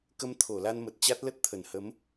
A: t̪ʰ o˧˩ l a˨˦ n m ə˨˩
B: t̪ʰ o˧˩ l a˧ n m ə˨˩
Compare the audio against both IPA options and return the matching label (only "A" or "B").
B